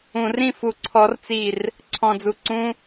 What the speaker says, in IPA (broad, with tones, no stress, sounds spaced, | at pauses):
ũ˧˩˧ r ĩ˥˨ f u˧˩ ǀʰ ɔ˦˥ r t͡s i˥˨ r | ǀʰ ɔ̃˧˩ d͡z u˧˩ ǀ ũ˦˥